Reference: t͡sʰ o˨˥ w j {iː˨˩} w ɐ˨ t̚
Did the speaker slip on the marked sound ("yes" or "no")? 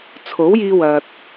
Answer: yes